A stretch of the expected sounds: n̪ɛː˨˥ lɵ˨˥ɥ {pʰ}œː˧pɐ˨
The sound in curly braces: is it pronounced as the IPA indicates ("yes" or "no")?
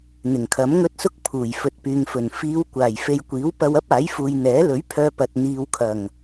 yes